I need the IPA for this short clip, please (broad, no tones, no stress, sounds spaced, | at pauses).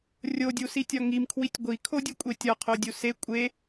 rʲ o dʲ u s i tʲ ɒ ŋ i m kʰ w i tʲ ɡʷ i kʰ o dʲ u kʷʼ e tʲ ɒ qʰ o dʲ u s e kʷʼ e